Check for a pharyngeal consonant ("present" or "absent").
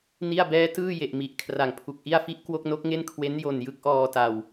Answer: absent